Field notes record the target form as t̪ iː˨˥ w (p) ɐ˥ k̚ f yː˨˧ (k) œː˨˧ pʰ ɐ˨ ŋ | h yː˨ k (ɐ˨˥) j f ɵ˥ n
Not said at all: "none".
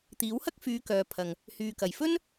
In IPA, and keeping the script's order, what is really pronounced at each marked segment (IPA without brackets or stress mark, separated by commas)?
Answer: h, k, ɐ˨